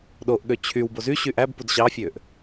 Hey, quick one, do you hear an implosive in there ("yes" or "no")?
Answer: yes